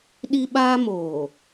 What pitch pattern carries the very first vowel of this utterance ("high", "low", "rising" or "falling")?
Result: high